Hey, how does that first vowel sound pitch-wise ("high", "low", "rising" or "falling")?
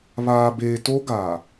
low